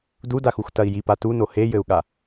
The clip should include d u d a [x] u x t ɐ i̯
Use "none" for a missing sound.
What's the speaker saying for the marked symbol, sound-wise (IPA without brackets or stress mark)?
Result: x